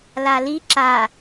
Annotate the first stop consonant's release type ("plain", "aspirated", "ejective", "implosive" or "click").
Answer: click